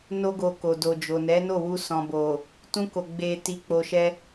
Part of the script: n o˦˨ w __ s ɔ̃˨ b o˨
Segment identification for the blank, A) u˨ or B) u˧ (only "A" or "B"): B